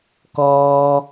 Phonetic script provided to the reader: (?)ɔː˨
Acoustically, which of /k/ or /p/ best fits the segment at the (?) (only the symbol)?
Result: k